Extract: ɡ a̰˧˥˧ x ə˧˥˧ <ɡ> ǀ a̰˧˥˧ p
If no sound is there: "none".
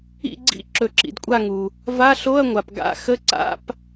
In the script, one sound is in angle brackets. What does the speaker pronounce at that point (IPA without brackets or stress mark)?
none